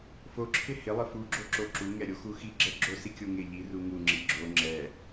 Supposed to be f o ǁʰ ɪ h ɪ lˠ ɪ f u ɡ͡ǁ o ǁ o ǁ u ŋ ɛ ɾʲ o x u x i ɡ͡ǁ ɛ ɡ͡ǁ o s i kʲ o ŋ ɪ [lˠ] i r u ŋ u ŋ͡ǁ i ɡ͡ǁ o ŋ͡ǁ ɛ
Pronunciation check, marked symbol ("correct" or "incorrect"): incorrect